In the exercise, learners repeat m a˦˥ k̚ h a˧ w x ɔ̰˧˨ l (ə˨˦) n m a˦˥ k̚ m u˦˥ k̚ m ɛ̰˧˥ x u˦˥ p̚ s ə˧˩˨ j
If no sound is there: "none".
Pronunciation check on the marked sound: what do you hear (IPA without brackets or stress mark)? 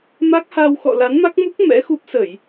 a˨˦